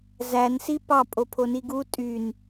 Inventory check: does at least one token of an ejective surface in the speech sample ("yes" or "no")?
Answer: yes